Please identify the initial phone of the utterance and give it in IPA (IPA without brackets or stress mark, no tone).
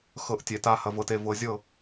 x